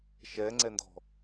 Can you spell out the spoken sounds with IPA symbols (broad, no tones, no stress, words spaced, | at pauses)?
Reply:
ʃɛːŋ͡ǀɛndɔ̤